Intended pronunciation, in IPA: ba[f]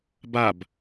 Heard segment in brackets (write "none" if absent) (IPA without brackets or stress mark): b